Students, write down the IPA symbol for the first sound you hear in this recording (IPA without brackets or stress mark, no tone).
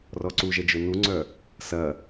r